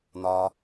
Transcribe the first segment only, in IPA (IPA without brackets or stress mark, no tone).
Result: n̪